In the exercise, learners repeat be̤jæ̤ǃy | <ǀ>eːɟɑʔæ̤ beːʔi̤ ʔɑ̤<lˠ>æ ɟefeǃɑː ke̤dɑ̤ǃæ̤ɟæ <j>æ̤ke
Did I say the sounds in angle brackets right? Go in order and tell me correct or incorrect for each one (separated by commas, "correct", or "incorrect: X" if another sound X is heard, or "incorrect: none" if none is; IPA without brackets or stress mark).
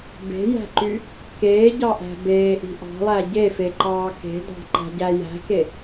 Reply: incorrect: k, correct, correct